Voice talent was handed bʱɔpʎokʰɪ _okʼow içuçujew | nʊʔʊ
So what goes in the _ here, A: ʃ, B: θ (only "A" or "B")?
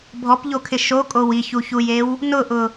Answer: A